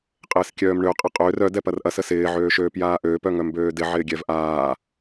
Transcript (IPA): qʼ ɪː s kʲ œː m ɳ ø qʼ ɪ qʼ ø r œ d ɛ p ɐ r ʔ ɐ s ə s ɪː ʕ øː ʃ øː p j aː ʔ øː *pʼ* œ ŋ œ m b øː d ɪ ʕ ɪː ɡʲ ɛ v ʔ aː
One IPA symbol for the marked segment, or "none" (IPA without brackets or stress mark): p